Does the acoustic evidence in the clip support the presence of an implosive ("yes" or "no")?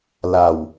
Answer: no